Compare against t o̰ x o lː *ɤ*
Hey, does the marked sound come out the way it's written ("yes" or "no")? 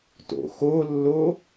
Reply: no